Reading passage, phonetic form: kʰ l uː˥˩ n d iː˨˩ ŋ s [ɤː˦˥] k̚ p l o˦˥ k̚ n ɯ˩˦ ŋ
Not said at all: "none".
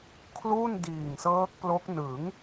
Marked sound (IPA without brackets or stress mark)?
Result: ɤː˦˥